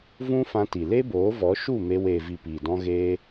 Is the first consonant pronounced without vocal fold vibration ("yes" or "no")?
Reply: no